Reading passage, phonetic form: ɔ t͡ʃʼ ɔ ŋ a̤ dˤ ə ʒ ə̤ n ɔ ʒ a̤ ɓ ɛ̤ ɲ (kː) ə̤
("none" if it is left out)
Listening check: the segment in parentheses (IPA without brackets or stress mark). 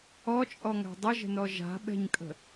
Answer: kʼ